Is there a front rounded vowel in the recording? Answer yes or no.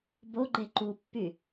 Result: yes